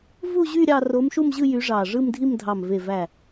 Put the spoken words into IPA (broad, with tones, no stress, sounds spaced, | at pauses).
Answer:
v u˥˧ ʑ y˥˧ ɾʲ ɑ˥˧ r o˧˥ m ʃ u˥˧ m ʑ ɯ˥˧ j y˧˥ ʐ ɑ˧˩ ʐ ɯ˥˧ m dʱ i˥˧ m dʱ ɑ˧˩ m v e˧˩ v æ˧˩